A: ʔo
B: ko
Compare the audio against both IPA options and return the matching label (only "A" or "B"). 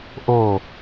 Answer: A